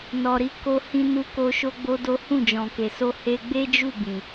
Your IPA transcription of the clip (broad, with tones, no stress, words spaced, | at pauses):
nɔ˨ɾi˨˦ko˧ hĩ˧nu˧ko˧ ʃo˦ɡ͡bo˦do˦ hũ˦˨d͡ʒɔ̃˨ke˨so˧ he˧ ɡ͡be˦d͡ʒu˦˨ bĩ˨